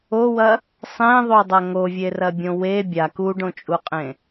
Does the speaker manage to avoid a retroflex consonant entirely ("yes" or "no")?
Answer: no